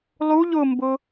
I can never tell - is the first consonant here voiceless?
no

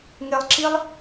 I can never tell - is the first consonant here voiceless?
no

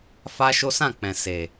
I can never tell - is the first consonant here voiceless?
yes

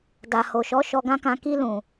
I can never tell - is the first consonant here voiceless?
no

